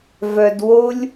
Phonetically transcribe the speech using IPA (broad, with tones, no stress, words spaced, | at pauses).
vœ˧dwo˦lʲ